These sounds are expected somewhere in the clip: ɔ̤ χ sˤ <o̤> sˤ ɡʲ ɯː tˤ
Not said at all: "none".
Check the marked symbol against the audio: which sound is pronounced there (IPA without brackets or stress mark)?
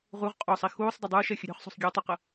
o̤